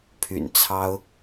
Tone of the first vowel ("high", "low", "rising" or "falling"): low